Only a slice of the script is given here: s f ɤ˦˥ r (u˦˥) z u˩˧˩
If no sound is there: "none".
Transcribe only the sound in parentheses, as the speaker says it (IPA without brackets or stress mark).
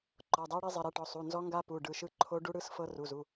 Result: u˩˧˩